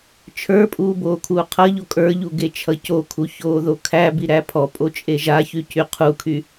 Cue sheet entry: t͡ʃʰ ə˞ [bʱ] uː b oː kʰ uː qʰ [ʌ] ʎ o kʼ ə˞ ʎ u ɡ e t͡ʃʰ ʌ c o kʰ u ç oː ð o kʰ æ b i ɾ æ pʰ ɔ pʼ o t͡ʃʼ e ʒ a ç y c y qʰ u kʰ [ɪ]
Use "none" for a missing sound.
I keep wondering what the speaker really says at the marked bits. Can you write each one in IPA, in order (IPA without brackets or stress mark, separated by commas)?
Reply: pʼ, ʌ, y